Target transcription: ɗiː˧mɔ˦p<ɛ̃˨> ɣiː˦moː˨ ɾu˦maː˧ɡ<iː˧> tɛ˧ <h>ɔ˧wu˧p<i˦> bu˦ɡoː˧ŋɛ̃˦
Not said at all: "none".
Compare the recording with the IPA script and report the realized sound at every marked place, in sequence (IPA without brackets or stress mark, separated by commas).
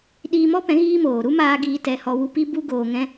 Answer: ɛ̃˨˦, iː˧, h, i˦